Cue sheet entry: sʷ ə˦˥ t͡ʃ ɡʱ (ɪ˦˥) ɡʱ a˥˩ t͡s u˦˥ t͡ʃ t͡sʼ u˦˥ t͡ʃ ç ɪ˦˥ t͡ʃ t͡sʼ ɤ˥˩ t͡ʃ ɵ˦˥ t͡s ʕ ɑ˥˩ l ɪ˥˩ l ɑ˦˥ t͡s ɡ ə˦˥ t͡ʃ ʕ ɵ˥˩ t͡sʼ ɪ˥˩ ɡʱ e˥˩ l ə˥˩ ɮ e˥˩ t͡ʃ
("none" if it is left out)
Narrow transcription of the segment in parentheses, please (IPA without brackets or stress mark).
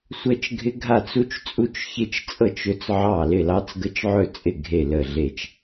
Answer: ɪ˦˥